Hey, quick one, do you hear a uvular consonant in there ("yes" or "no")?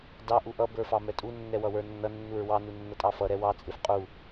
yes